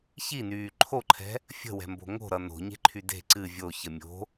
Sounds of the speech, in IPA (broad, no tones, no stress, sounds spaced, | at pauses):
ç i n yː ǃʰ o ǃʰ ɛ̤ | fʲ ə̤ w ɛ̤ m b o̤ ŋ o̤ ɾ ʌ n o̤ ɲ e̤ ǃʰ y d e̤ ǀ ɨ vʲ o ç ə mʲ o̤